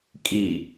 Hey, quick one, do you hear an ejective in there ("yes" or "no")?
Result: yes